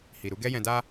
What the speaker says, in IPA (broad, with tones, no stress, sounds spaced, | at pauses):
h i˨ ɾ u˨˦ ɡ ɛ˦ j ɛ̃˧ d a˧